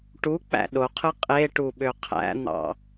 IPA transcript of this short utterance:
ʈu k͡pæ̰ɗoqʰɯ qʼeʈu ɓøqʰæ̰n̪ɑ̰

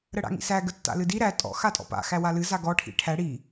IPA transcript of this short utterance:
ɾəɽa̰ŋḭsæ ɡətːa̰lɨdi ɾæ tʼɔ̰ xatʼɔ̰pa̰ xæwalɨ zaɡɔ ʈʰḭʈʰæ ɽi

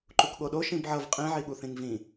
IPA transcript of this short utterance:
ǃukɠoɗo ʃĩbʕʌv qʼĩʕiɠuθĩŋ vĩ

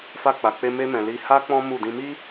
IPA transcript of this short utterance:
fa˧k͡pa˨k͡pe˧ me˦mɛ̃˧ li˧ha˦ k͡pɔ̃˦mu˦˨ dĩ˧mi˦

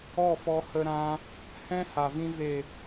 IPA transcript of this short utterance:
ɔ˦˨fɔ˧hə˧ɾã˧ | hɛ̃˦ha˨vĩ˧ ve˨

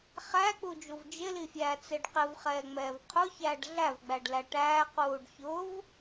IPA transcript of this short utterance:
χæk͡pud͡ʒuv d͡ʒɪlifʲæːt͡sɪɖ qɪvχɛːŋ͡mɛːv qʰʊçæːɖ ɮævɡ͡bæɖlæ ʈæːquːɖ çʊv

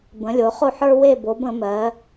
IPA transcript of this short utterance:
bə̃˩˧lʲo˩˧χo˦˨ħ ə˞˦we˦˨bo˩˧b ə̃˩˧mɜ˩˧

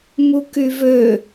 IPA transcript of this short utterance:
mukyvø

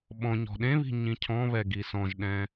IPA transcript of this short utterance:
ɓɔ̃ɲɔ̤ ɗẽβi̤ ɲĩcʰɔ̃βɛ ɡisɔ̃ʒɗɛ̃

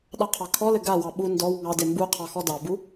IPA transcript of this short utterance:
ɗɑqʰɑkʰɔlɘ ɡawɑ ɓu ndɔw ŋɑde mbu qʰɑxɔdɑbu

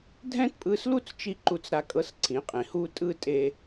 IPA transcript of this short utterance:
dʱɛ̃˦tpʼɯ˧slu˦t͡st͡ʃi˧ ǃu˦t͡sɾa˦kʼɤ˦s ǀʰĩ˨˦qʼĩ˨hu˦ tʼɯ˦˨tʼe˧

